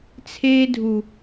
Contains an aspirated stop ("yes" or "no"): yes